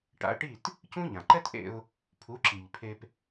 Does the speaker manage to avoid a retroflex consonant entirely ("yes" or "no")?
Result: no